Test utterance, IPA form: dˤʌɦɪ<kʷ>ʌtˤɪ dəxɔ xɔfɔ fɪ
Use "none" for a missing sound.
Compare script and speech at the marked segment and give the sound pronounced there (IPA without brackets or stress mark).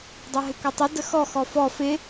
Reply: kʷ